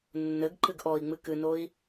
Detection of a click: present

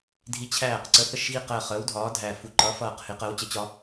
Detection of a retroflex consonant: absent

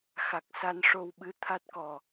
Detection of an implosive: present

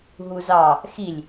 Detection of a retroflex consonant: absent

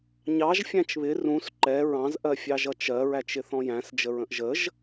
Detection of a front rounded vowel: absent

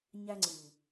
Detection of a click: present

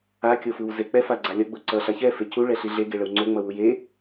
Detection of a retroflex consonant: present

